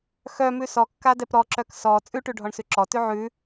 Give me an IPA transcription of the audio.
xœmʉ sɔkːadɛp ɾɔǁœk sɔ t͡sʼʉʈʉɖʱɔɳsʉ ǁɔtʉ ʕʉ

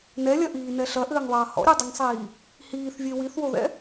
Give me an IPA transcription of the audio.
nɛlʲɐʔiːnɛ ɬɐʔɘːŋðˤɐː hɔ̰ɾʲadˤɘŋsˤiː | hiːθvʲe wiθwoðɛ̰

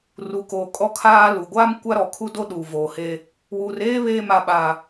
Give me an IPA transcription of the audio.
ru˨koː˨ kʼɔ˦kʰaː˦lu˨ ɡʷaː˦m kʷa˦ɾɔ˨ kʰu˦do˦ ɗuː˨voː˨heː˦ | wuː˨reː˦ βeː˦˨ma˨ ɓaː˨

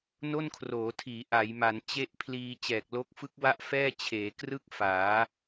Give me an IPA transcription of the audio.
no˥˩nkʰroː˩˦tʰiː˩˦ ʔa˩˦jma˩˦n t͡ɕe˥˩ʔpʰliː˧ t͡ɕɛː˨˩k̚lo˦˥k̚fɯ˦˥k̚wa˥˩ʔ fɛː˥˩ t͡ɕʰeː˩˦krɯ˥˩k̚faː˩˦

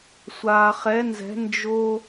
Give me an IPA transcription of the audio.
sʷaː˩χɛ˩˧nzɛ̤˩˧ nd͡ʒo˧

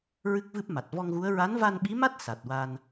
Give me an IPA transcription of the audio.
ɹɨ˦˥k̚vɨ˦˥p̚ma˨˩t̚ vɔ˧ŋɣu˧˥ə̯ ɹa˧˥nva˧nɓi˧˥ma˦˥t̚ sa˨˩t̚ wa˧n

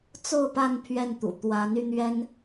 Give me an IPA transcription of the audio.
t͡so˥˧ʊ̯pa˥˧n pʰɥɛ˥˩nt̪ṵ˨˩ t̪wa˧˥ny˧n̪ɥɛ˥n

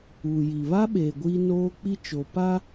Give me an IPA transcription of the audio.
uː˨ji˨ βa˦ɓeː˨ ɡʷiː˦noː˦ k͡pi˦t͡ʃoː˨ pa˦

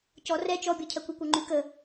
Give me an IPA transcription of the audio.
cɔ rɛ t͡ʃɔbʲɔcʰɜkʷ ikʷɔŋ͡ǃy kə

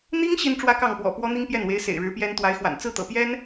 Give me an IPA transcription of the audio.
n̪i˥ŋ ɕi˥nʈ͡ʂwä˥kɑ˥˩ŋpwɔ̰˨˩ pwɔ˥n̪i˥ŋpjɛ˥˩nwe˧˥ɪ̯ sḛ˨˩ɪ̯ɻɻ̩˧˥pjɛ˥n t̪wa˧˥ɪ̯xwa̰˨˩n t͡sɹ̩˥˩ t̪ɤ̰˨˩pjɛ˥n

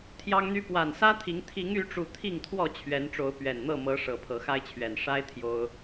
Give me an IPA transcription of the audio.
t̪ʰjɑ˦ŋn̪y˦ pwa˨˩nsä˦t̪ʰi˨˦ŋ t̪ʰi˨˦ŋy˨˦ʈ͡ʂu˨˩ t̪ʰi˥˨ŋt̪ʰwɔ˥˨ t͡ɕʰɥɛ˨˦nʈ͡ʂo˨˦ʊ̯ pɥɛ˨˩nn̪ɤ˥˨ mɤ˨˦ ʂɤ˨˩pʰɤ˨˦xa˦ɪ̯t͡ɕʰɥɛ˨˩n ʂa˦ɪ̯ t̪ʰjo˦ʊ̯

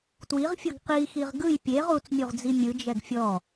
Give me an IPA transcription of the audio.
twiʁfʲɤɡ qixiʁ ɡɯj pʲeʁ ut͡smʲuʁd͡zi mʲɯd͡ʒɛɡ fʲɔ

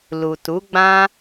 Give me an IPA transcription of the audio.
lu˨tu˨˦ɡ͡bã˦

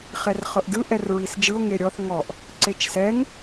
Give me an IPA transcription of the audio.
χɛrχɤʔdɯ ʔɛrɹisd͡ʒɯo̯ ŋeɾʲɔθ ŋɔʔ | ǀet͡ʃsɛŋ

